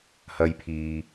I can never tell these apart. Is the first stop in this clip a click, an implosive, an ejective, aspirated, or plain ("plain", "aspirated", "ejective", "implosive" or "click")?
aspirated